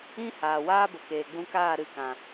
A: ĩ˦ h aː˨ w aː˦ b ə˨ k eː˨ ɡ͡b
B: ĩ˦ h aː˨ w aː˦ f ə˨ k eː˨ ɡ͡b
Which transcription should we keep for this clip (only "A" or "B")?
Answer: A